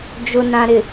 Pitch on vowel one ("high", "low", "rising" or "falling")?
low